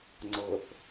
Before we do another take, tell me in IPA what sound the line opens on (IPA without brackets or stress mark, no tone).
ŋ͡ǀ